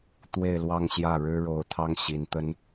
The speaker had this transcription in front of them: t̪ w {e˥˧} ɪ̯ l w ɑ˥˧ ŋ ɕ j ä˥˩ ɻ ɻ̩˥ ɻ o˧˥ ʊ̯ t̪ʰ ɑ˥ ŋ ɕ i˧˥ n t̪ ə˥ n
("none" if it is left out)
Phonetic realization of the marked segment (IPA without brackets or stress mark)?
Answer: e˥˧